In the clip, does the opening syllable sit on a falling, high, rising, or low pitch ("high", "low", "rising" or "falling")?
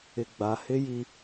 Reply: low